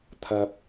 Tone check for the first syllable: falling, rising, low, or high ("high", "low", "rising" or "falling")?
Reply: low